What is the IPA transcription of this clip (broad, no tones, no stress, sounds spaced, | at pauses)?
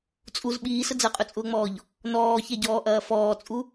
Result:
t͡sʼ u z ɓ iː s ə d͡z ɐ qʼ ʊ t͡sʼ ʊː ŋ͡m ɔː ʎ | n ɔː ç ɛ ɟ ɔː ʔ ɐː f ɔː t͡sʼ u